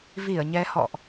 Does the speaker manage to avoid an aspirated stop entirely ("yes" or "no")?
yes